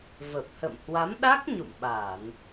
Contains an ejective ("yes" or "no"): no